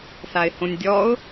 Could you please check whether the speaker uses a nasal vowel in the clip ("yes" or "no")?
yes